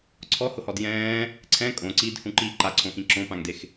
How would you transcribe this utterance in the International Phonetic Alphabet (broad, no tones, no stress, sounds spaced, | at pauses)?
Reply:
ǀʰ ɔ h ʊ h ɔ d j ɛ̃ː | ǀʰ ɛ̃ kʼ õ ǀ iː d h ũ ǃ iː ǃ a ǀʰ õ x ĩ ǁ õ p ã ŋ d e x